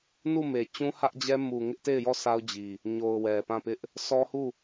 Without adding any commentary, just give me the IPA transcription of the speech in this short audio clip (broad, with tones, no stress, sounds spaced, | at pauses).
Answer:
n u˦˨ m e˨ t͡ɕ ũ˦ h ä˦ ʔ d͡ʑ ɛ˦ m u˨ ŋ ɪ˦ ʔ t e˦˨ ɪ̯ j ɔ˦˨ sʰ a˦ ʊ̯ d͡ʑ i˨ | ɲ o˨ ʊ̯ w ɛ˨ p ã˦˨ p ɪ˦ ʔ | sʰ ɔ˦ h u˦˨